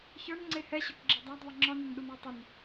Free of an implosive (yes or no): no